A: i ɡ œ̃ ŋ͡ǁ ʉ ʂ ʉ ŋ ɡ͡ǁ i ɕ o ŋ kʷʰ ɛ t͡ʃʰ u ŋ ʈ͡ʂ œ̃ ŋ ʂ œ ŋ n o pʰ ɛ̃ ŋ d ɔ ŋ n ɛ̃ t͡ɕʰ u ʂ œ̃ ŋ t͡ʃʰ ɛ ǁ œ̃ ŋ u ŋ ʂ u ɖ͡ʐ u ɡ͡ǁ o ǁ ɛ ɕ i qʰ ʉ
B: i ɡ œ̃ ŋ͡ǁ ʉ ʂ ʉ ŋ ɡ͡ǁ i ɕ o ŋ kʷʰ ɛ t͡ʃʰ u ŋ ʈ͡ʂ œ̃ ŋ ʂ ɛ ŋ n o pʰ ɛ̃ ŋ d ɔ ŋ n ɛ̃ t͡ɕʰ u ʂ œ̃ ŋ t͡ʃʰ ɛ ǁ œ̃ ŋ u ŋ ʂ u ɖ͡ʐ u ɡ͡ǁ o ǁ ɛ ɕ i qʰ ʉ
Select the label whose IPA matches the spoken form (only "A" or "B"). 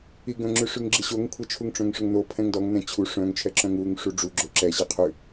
A